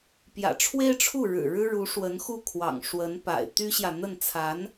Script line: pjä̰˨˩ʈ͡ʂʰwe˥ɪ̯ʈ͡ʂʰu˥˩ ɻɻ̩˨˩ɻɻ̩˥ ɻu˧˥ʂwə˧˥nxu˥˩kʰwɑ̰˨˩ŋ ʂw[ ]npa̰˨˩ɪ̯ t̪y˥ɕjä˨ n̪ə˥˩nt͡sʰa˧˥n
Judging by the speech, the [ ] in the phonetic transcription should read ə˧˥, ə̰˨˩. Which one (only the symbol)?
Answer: ə˧˥